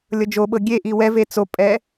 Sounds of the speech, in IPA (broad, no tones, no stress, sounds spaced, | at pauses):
lʲ ɤ d͡ʒ o ɓ ɤ ɡʲ e ʔ i w ɛ v e t͡s o pʼ ɛ